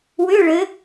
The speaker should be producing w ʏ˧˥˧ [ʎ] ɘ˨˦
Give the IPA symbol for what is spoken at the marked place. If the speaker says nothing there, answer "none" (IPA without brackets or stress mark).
ɭ